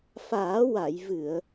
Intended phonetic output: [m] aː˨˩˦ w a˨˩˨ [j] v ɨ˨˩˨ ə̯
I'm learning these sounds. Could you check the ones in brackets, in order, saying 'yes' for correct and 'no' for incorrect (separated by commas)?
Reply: no, yes